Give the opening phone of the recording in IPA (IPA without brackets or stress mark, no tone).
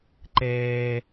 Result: ǃ